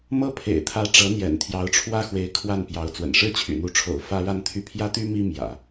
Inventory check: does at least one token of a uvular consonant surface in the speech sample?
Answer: no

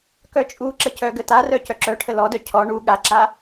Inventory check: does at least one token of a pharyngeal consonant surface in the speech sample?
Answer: no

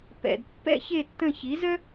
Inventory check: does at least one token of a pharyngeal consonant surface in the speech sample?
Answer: no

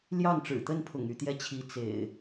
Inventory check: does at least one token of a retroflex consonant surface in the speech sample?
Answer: yes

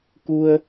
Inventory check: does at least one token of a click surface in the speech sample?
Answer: no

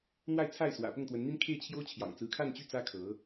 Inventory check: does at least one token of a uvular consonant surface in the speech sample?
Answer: no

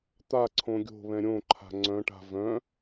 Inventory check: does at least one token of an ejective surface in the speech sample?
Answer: no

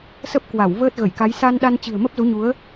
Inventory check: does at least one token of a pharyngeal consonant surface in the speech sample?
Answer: no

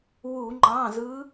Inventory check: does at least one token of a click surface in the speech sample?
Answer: yes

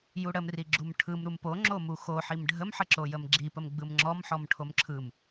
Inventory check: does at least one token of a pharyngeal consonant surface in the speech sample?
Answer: yes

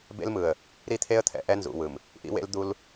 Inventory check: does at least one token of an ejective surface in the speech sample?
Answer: no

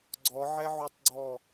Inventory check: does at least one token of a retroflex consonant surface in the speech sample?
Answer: no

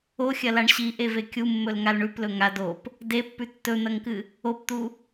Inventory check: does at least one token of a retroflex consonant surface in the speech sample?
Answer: yes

